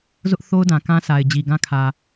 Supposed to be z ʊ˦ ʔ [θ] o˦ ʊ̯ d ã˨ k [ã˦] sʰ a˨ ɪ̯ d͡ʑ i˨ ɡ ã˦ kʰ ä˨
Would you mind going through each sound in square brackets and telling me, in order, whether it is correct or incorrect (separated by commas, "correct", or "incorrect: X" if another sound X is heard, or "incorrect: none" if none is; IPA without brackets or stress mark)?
correct, correct